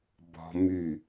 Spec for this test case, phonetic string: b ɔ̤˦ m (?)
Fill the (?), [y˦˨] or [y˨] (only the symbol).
y˦˨